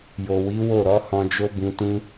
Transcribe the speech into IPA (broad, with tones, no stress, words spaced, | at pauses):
jo˨wi˨˦ wo˦˨ɾɔ˨˦ hɔ̃˧d͡ʒo˦bĩ˧tĩ˦